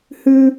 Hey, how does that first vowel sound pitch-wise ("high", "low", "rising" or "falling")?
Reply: high